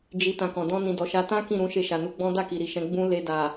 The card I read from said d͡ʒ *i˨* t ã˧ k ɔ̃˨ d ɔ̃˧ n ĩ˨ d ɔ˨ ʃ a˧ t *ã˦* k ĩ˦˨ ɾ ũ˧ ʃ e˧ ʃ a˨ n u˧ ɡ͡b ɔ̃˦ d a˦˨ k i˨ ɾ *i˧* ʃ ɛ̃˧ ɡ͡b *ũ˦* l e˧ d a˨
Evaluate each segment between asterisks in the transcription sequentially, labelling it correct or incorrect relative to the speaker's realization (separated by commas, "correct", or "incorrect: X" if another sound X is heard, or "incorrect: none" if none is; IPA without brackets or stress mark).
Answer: correct, correct, incorrect: i˨, correct